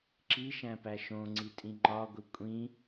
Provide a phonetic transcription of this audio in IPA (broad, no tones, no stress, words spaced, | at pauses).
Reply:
ǁiʃæ̃pæ ʃõŋ͡ǀitʼĩ ŋ͡ǃɒɡʷi kʷʼĩ